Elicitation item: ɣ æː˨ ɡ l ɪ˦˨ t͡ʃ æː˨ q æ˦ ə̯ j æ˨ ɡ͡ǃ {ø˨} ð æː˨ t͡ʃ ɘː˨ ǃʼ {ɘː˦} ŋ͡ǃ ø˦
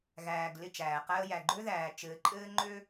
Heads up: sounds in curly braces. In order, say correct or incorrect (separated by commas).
incorrect, correct